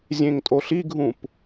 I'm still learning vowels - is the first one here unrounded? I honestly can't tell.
yes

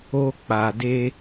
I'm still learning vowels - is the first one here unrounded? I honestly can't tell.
no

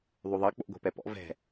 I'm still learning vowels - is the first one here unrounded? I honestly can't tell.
no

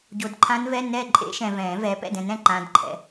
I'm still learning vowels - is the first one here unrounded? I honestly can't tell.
no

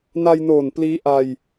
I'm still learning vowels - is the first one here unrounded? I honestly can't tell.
yes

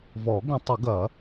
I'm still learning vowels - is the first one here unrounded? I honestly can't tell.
no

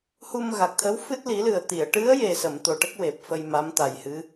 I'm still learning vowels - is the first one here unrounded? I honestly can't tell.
no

